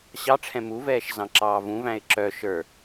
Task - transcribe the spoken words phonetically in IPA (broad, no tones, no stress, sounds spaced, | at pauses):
ɕ ɑ ʈ͡ʂʰ ɛ̃ m u v ɛː ʃ z ɑ̃ ǁ ɑː v ũ v æ̃ ɪ̯ ǁ œ ʃ ə˞